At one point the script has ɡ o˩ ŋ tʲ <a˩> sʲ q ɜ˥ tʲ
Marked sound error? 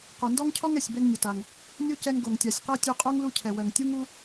no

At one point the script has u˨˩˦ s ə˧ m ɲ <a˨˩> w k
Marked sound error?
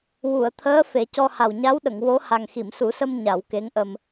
yes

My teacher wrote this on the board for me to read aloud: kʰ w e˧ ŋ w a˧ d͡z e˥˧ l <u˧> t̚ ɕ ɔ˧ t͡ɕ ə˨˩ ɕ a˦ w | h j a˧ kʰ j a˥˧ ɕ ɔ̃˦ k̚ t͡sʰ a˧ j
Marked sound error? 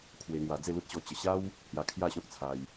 yes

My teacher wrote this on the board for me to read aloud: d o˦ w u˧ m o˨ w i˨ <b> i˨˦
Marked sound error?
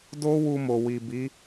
no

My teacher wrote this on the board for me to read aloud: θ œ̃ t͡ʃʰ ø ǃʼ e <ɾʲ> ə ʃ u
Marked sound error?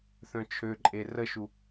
yes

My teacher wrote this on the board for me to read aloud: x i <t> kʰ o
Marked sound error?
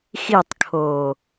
yes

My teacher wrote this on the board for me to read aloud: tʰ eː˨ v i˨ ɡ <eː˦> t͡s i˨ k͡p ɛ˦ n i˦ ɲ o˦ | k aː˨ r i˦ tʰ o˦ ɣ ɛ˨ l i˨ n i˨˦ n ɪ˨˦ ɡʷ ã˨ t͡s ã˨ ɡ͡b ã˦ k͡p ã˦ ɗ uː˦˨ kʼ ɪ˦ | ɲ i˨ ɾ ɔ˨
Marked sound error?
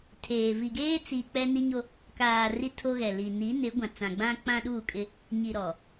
no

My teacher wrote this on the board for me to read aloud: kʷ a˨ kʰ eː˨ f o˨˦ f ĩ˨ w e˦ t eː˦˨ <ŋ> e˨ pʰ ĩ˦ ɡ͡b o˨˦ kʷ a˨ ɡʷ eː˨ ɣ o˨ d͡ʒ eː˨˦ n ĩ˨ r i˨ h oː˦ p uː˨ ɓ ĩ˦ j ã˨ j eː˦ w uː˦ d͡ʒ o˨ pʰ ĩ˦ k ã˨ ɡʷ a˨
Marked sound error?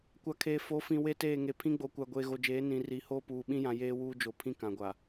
no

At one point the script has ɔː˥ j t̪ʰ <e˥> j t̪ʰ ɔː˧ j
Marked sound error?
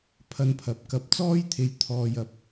yes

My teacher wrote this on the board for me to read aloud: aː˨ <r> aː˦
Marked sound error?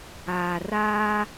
no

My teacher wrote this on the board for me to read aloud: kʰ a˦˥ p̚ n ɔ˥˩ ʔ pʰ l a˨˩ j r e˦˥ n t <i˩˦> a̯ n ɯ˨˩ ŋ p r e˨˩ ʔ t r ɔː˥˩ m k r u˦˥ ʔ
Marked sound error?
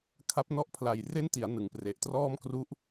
no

